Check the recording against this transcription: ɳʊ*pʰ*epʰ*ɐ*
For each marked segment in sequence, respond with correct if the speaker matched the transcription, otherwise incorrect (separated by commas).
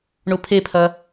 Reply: correct, correct